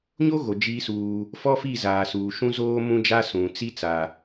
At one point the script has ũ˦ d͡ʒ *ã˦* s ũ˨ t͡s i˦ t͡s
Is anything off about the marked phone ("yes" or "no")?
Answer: yes